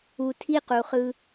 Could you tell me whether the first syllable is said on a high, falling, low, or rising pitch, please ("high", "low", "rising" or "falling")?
low